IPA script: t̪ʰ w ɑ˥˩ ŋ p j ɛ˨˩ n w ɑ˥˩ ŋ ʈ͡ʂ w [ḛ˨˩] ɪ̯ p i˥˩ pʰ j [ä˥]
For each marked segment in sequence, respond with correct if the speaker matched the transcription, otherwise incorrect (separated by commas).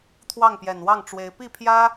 incorrect, correct